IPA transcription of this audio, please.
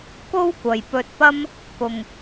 k o˥ w kʷ ɐ˨ j p ɵ˧ t̚ p ɐ˥ m | k ʊ˨ ŋ

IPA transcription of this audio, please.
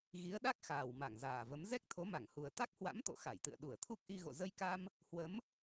ɣ i˨˦ ə̯ ɗ a˦˥ k̚ x aː˨˩ w m a˧˩ ŋ z aː˨˩ v ə˨˦ m z ɛ˦˥ k̚ t̪ʰ o˨˦ m a˧˩ ŋ h u˨˩ ə̯ t̪ a˦˥ k̚ h w a̰˧˥ m t̪ o̰˧˨ x a˧˩ j t̪ ɨ̰˧˨ ə̯ ɗ u˧˩ ə̯ t̪ʰ u˦˥ k̚ ʔ i˧ ɣ o̰˧˨ z ə˧ j k a˧ m | h w ə˨˦ m

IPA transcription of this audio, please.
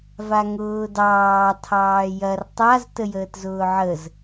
v a ŋ ʊː d ɑː tʰ ɑː j ɐ r tˤ a z t ə j əː t z ʊː ʕ ə z

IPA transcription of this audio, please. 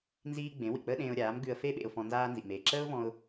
n z iː˥ ɡ͡b ẽ˩˥ w ḭ˩ k͡p əː˥ ɗ ẽː˧ ʊ̯ ɾʲ aː˩˥ m ɡ ʉ˧ ə̯ f e˥ ɓ ḛ˧ ʊ̯ f ɔ̃˧ n z aː˥ n z ḭ˩ m eː˩ ǁ əː˥ ʊ̯ v ɔ̃˧ ʊ̯

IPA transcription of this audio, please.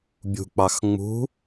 bʲ ṳ k͡p ɑ x ŋ͡m ṳ

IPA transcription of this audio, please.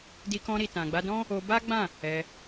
d i˧ k ɔ̃˧ ɾ i˨ t ã˨ ɡ͡b a˧ d ɔ̃˦ | o˧ b a˦ ɡ͡b ã˦˨ | ɛ˧

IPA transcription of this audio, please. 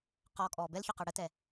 q ɔː kʼ ɔː b ɛ l ç œ q ə˞ ɽ ə t ɛ

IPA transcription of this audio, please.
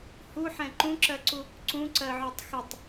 h u ħ ɛ̃ ǃ ũ ǁ ɜ ǀ u | ǀ ũ ǀ ɜ ʕ ø tˤ x ə tˤ

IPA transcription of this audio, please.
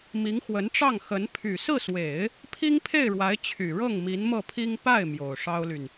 m i˧˥ ŋ x w ə˧˥ n ʈ͡ʂ ɑ˥˩ ŋ x ə˧˥ n pʰ y˨˩ s ɹ̩˥˩ s w e˨˩˦ ɪ̯ | pʰ i˥ ŋ pʰ e˥˩ ɪ̯ ɻ w a˧˥ ɪ̯ t͡ɕʰ y˨˩ ɻ ɤ˥˩ ŋ m i˧˥ n m ɤ˥˩ pʰ i˥ ŋ p a˥˩ ɪ̯ m j o˨˩ ʊ̯ ʂ ɑ˥ ʊ̯ l y˨ n

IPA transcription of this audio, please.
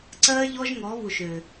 ǀ ɜ˦ ʎ ɔ˦ ʒ ŋ ɔ˨˦ β u˨ ʃ ø˨

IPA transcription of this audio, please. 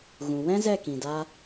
ɣ ũ˨ w ɛ̃˦ z ɛ˦˨ k ĩ˨ d a˧

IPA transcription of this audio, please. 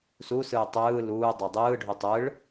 s u s ɯː tˤ ɯː l uː dˤ e dˤ ɯː ɖʱ u tˤ ɯ ɭ

